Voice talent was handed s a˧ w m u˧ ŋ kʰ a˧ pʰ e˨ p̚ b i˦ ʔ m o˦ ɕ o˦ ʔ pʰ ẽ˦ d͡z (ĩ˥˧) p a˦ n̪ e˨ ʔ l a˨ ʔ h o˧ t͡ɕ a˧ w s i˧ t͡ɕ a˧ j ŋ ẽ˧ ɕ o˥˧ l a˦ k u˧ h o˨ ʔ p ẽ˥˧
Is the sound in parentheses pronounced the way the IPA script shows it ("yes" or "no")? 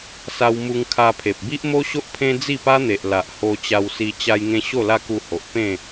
no